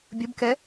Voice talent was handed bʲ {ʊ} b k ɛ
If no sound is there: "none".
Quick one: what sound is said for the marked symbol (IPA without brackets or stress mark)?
ʊ